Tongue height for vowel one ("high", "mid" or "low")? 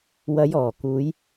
low